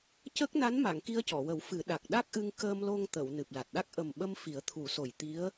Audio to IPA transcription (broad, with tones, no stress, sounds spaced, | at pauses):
c ə˦˥ k̚ n a˧˥ n m a˨˩˨ ŋ k i˧ ə̯ c ɔ˨˩˨ w ə˨˩˦ w f ɨ˨˩˦ ɗ a˨˩ k̚ ɗ a˦˥ k̚ ʔ ɨ˧ ŋ k əː˧ m l o˧ ŋ t̪ ə˨˩˨ w n ɨ˨˩ p̚ l a˨˩ t̚ ɗ a˦˥ k̚ ʔ ə˨˩ m ɓ ə˧ m f i˨˩˦ ə̯ t̪ʰ u˨˩˦ s o˨˩ j t̪ i˧˥ ə̯